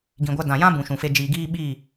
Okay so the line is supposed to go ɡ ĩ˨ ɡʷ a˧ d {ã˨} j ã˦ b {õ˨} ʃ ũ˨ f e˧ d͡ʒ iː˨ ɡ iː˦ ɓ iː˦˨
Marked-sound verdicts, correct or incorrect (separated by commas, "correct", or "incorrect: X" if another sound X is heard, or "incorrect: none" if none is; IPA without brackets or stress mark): correct, incorrect: ũ˨